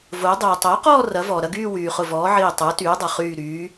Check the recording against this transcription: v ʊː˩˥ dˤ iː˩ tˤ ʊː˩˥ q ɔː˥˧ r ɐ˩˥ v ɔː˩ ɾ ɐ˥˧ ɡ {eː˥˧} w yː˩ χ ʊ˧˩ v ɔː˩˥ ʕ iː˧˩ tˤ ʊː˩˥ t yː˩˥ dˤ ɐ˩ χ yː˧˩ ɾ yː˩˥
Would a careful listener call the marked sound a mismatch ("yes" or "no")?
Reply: yes